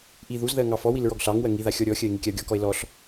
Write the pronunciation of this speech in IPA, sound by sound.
ʔ i ð u z ð ɜ ŋ ɑ f ɔ w i l ɹ ɔ ɡ ɬ ɑ ŋ w ɜ ŋ i ð a xʲ ɔ ɾʲ ɔ xʲ ɜ e̯ ŋ i kʲ a o̯ ɡʲ ɔ k ɔ e̯ l ɔ ɬ

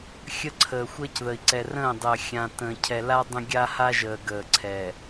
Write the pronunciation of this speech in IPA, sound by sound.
xʲ ə˦ ǀʰ əː˨ xʷ əː˦ c ð ə˨ i̯ ǀ ɛ˨ r ə̃ː˦˨ dˤ əː˨ xʲ ã˨ t ə̃ː˨ cʰ ɛ˨ l a˦ dˤ ə̃˦ ɡʲ a˦ h a˦ ʒ əː˨ ɡ əː˨ ǀʰ ɛ˨

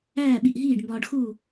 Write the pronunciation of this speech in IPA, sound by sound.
æː˥˩ ɓ i˧˩ ʔ ɦ iː˥˩ ɖ m b ɒː˧ ɖ x uː˥˩

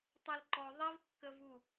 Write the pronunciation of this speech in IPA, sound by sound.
tˤ ɛ l ǃ ɔ ðˤ i v kː ə v u

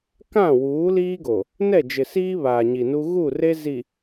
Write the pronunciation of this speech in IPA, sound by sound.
k ã˦˨ w uː˨˦ l iː˦ ɡ o˨ | n ɛ˦˨ d͡ʒ ɪ˨ s iː˦ β aː˨ ɲ i˨ n u˦ ɣ u˦˨ r e˦ z i˨

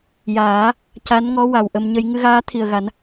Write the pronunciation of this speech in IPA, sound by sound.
j aː˨˩˦ | c a˧˥ n ŋ ɔ˧˥ w a˨˩ w ʔ ə˧ m ɲ ə˧ j ŋ ɨ˧ ɣ aː˧˥ t̪ʰ i˨˩ ə̯ ɣ a˨˩˦ n

